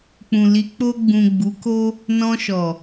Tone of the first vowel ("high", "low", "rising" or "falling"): low